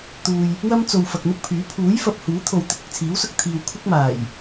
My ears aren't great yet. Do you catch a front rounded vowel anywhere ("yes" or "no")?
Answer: yes